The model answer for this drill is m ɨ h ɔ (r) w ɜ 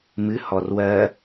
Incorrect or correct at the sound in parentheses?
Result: correct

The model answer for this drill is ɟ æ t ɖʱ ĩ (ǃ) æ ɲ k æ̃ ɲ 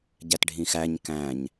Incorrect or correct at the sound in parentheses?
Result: incorrect: x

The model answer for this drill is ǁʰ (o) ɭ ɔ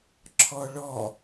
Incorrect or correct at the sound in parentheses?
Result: incorrect: ɔ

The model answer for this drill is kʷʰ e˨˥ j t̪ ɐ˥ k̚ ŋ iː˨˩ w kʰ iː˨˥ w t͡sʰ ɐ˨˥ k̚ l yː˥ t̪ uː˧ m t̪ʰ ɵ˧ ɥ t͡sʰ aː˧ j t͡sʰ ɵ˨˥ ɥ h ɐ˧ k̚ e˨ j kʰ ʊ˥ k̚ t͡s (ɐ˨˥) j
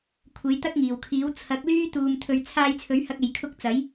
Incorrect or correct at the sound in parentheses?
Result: correct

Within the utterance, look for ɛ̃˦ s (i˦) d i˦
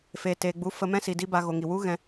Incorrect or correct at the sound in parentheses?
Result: incorrect: i˨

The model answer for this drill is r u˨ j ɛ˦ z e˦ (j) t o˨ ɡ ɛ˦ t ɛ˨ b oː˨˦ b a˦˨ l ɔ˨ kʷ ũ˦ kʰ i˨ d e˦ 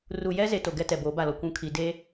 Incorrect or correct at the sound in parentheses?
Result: incorrect: none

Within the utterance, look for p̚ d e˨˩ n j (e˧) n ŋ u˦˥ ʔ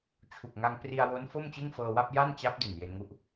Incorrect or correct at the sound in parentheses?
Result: correct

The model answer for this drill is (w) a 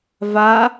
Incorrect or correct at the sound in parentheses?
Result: incorrect: v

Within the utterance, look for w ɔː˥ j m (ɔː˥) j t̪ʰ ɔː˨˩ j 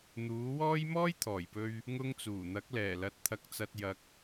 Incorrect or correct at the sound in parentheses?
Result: correct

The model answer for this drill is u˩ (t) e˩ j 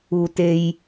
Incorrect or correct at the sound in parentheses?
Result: correct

